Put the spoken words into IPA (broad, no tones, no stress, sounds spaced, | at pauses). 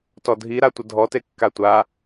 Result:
t ɔ dʱ i ɾ a tʷ ə dʱ ɔ t e kː a tʷ a